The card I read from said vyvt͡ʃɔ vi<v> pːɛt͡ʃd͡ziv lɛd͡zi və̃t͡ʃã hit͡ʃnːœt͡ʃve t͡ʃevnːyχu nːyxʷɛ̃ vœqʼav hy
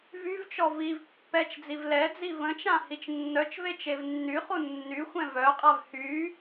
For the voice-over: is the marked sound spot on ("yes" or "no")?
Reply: yes